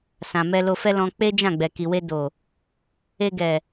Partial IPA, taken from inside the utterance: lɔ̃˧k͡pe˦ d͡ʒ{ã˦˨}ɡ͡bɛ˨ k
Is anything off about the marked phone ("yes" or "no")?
no